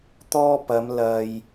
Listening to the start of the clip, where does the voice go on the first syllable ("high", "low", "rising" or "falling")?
high